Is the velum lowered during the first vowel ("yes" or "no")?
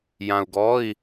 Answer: yes